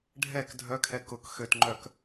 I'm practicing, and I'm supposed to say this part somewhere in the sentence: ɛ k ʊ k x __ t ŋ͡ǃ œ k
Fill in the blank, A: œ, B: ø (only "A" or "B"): B